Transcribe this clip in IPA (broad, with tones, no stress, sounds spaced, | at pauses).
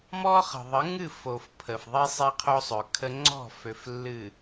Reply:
m ɔ˦ χ ə̤˨ ðˤ ə˨˦ ŋ ɨ˦˨ f o˨ f pʰ ə˨ f ðˤ i˦ sˤ e˦ qʰ o˦ sˤ ø˨ kʰ ə˦ ŋ͡ǀ ɔ̤˦˨ f ø˨ f lː ɨ˨